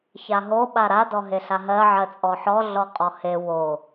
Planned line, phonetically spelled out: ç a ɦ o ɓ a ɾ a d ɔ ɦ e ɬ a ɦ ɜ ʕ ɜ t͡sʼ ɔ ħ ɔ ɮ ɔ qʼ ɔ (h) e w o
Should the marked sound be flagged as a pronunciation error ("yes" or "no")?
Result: no